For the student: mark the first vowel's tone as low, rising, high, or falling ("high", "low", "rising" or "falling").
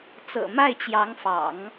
low